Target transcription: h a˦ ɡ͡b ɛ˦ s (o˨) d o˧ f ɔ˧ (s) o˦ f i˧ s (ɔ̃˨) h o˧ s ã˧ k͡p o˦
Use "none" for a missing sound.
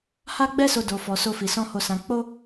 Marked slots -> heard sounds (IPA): o˧, s, ɔ̃˦

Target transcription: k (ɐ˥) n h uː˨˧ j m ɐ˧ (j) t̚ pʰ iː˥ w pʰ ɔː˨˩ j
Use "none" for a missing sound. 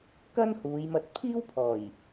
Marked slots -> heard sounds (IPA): ɐ˥, none

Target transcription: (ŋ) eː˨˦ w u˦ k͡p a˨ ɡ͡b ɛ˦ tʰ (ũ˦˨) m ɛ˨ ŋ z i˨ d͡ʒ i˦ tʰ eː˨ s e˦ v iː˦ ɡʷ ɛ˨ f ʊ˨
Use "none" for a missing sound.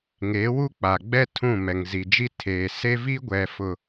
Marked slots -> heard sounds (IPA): ŋ, ũ˦˨

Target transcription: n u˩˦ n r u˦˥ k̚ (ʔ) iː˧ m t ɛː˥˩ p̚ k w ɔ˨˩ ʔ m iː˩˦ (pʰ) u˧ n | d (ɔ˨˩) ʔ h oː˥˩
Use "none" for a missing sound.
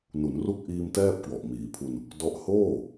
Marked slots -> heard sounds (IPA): ʔ, pʰ, ɔ˦˥

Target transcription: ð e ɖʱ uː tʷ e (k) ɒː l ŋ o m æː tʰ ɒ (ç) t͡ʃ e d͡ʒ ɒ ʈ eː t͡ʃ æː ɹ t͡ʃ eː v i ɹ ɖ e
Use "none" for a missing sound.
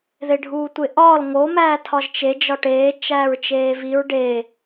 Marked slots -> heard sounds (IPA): ʔ, ʒ

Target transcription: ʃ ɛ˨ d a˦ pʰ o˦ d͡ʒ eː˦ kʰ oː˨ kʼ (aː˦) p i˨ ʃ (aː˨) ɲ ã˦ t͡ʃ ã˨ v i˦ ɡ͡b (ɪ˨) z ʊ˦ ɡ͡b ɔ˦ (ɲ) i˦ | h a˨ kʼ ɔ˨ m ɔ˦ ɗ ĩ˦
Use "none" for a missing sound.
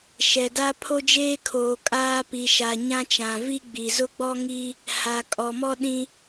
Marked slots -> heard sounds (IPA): aː˦, a˨, i˨, ŋ

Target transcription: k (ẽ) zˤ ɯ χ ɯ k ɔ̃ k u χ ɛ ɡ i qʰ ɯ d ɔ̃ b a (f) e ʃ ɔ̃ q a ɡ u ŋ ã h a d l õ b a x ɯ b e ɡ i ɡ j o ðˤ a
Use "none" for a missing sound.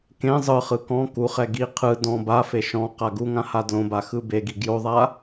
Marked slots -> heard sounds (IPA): ẽ, f

